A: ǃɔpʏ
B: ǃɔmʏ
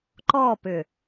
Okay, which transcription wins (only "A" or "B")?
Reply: A